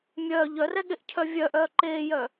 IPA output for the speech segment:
mʲ œː ʎ œ r ɛ ɠ e ʔ cʰ œ vʲ œ ʔ œː ǃ eː j œ

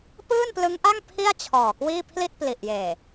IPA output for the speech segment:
p ɯː˥˩ n p l ɯ˦˥ ŋ ʔ a˥˩ ŋ pʰ i˥˩ a̯ t͡ɕʰ ɔː˨˩ k w iː˥˩ pʰ l i˥˩ t̚ p l i˨˩ ʔ j eː˨˩

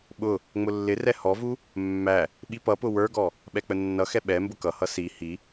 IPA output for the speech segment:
ɓ ʊ | ŋ͡m ʊ lː ɪ r ɛ h ɔ v u | mː æ | ɓ i p ʌ p ʊ w ə˞ ɡ ɔ | ɓ ɛ k͡p ə nː ʌ x ɛ ɓ ɛ m b ʊ k ʌ h ʌ s i h i

